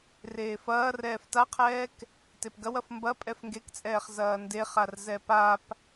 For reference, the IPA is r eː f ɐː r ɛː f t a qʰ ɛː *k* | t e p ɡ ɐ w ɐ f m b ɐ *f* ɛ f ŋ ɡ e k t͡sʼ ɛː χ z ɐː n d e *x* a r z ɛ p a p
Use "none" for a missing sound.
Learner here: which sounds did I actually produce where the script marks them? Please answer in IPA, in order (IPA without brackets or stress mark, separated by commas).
k, pʼ, χ